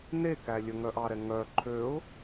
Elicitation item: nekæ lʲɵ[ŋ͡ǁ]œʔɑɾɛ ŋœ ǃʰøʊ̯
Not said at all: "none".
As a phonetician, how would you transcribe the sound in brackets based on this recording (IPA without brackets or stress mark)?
ŋ